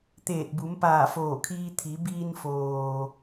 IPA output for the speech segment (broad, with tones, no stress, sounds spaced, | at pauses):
t̪ eː˧˩ t̚ b u˩˧ m p aː˧˩ f oː˧˩ kʰ iː˧ t̪ʰ i˩˧ b iː˧ n f oː˩